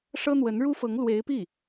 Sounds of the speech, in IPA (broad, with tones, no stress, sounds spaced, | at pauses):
ʂ ɤ˥ n̪ w ə˧˥ n ɻ u˥ f ɤ˧˥ ŋ l w e˧˥ ɪ̯ p i˥˩